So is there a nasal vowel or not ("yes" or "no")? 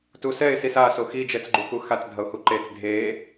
no